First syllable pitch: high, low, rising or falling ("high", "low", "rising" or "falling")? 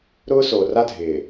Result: high